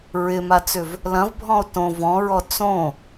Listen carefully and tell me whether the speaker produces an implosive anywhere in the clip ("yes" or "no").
no